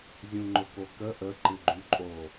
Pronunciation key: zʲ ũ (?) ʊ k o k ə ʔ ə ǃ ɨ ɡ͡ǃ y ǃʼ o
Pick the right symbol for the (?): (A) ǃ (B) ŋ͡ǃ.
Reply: B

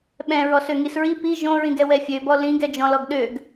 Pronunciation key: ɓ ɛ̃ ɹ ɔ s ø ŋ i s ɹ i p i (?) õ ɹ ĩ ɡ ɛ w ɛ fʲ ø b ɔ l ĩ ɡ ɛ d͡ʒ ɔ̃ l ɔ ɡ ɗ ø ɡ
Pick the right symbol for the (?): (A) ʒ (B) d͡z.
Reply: A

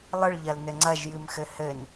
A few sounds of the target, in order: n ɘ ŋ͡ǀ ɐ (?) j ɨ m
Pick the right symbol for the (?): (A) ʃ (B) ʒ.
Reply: B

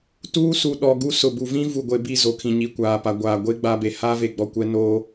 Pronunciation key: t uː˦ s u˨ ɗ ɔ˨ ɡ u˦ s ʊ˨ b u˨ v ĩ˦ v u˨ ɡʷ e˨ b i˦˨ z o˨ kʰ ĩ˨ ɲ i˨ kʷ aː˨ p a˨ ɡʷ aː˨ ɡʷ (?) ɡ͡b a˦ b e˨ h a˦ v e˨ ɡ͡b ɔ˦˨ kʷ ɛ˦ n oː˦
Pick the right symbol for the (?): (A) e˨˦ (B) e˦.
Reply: B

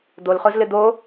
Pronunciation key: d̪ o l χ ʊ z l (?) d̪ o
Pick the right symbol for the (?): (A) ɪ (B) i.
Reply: A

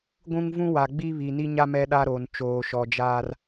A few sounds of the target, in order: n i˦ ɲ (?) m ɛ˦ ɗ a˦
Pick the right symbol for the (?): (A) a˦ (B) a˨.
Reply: A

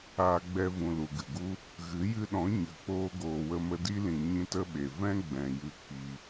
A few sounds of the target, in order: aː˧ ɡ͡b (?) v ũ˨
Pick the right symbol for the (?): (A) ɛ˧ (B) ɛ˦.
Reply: A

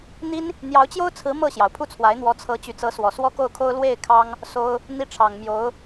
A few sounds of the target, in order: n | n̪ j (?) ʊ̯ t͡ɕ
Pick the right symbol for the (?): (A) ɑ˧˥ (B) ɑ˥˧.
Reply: A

